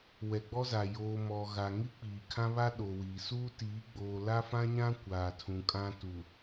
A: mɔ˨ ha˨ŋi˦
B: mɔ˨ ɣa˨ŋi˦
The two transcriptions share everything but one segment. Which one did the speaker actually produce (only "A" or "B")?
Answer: B